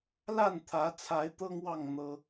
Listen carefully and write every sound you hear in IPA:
la˥˨nt̪ʰä˨˦t͡sʰa˨˦ɪ̯ t̪ɤ˦ŋwɑ˥˨ŋ n̪ɤ˦

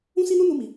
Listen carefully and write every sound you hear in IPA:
ũ˦si˦nu˦ nu˦mi˧

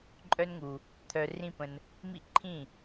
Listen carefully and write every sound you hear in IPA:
ǃʼœ˦nŋu˧ | t̪ʰœ˧rĩ˦pə̃˧n | mḭ˦ǃʰĩ˦˨

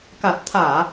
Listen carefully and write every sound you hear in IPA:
ka˨˩t̚t̪ʰaː˧˩˨

